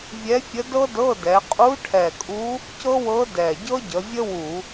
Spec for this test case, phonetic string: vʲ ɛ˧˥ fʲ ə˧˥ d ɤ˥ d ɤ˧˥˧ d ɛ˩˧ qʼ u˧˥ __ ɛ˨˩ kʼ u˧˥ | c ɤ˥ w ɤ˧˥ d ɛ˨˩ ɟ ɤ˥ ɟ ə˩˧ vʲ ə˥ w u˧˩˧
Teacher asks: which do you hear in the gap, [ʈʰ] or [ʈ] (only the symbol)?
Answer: ʈʰ